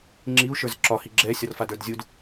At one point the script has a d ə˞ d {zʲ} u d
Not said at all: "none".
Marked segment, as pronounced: zʲ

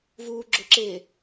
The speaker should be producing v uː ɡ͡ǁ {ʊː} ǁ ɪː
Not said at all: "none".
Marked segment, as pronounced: ʊ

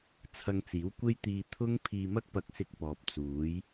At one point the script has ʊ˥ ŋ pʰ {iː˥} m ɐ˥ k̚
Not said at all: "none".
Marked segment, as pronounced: iː˧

